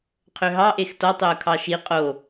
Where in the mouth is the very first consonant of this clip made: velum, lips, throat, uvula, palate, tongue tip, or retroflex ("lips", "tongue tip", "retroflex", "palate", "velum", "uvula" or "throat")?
uvula